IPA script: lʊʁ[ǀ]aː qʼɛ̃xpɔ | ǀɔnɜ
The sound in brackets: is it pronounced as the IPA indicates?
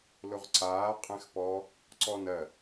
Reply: yes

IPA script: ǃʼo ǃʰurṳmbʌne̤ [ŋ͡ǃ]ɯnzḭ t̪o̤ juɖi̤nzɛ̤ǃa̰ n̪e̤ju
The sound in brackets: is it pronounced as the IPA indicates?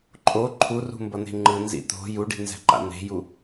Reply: yes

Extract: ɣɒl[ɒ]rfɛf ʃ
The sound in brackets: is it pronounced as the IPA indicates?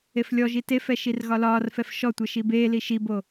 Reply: no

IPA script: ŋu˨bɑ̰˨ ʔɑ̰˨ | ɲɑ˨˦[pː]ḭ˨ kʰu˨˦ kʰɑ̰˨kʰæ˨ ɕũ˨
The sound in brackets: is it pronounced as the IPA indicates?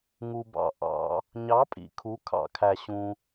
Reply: no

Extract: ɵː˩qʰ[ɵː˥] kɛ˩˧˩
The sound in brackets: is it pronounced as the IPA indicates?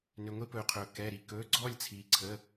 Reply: no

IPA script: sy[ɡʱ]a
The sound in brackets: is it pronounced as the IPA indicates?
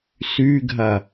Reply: yes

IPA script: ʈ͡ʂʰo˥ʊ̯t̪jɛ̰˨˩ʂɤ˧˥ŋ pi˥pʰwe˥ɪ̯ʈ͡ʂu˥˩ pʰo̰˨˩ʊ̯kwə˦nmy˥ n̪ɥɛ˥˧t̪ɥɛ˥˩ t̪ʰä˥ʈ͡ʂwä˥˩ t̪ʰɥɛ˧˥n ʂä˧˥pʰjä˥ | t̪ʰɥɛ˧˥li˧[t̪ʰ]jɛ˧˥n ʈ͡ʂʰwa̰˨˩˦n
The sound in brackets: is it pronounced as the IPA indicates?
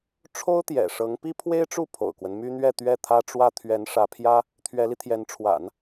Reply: yes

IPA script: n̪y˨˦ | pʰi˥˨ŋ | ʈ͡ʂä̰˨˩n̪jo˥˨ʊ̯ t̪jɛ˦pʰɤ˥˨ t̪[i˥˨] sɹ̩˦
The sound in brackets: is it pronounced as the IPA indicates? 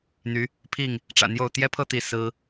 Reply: yes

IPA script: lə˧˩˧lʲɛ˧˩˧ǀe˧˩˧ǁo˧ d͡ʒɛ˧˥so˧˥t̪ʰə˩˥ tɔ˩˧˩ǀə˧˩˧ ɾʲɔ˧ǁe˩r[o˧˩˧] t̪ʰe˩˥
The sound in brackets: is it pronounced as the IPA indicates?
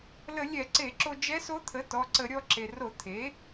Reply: yes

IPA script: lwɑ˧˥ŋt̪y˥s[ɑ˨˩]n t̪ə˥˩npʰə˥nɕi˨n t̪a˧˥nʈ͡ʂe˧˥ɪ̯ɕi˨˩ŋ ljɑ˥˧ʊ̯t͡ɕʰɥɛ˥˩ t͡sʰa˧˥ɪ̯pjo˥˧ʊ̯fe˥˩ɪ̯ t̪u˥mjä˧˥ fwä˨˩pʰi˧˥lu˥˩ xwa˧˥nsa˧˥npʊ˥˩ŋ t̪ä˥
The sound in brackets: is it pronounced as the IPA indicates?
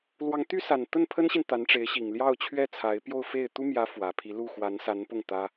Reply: no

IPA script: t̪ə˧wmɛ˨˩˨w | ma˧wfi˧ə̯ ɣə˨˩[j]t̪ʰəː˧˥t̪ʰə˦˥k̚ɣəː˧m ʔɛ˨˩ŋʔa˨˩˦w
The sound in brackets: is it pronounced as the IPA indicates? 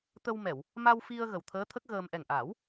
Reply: no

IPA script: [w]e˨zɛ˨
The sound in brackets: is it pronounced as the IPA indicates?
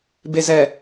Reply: no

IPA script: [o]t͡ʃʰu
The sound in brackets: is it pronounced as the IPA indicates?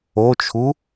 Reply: yes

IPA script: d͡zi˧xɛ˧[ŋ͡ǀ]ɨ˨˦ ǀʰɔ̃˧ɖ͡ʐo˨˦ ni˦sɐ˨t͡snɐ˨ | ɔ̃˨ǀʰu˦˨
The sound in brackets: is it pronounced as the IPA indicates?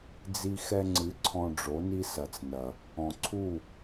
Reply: yes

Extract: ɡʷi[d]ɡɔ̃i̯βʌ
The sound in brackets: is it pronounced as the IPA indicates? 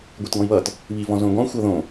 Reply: no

